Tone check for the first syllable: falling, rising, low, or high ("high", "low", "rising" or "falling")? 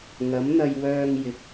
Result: rising